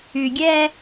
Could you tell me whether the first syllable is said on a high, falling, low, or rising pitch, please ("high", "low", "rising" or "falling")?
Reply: low